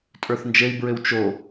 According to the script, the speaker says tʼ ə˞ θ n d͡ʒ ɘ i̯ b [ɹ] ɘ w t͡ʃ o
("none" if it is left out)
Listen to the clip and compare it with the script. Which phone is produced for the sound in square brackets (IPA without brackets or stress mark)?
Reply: ɹ